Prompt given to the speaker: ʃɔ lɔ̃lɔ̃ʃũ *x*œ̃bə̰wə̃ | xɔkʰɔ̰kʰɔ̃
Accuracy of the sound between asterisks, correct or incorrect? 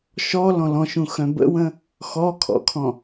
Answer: correct